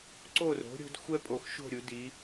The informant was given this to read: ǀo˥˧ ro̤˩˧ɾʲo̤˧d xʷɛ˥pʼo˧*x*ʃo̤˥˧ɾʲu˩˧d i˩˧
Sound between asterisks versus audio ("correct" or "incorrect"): correct